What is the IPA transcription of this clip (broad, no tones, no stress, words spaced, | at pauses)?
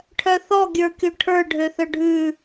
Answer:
ʈʰœθɔ ɡʲə˞kʲoʈʰə˞ ɖʱøθœɖʱʉ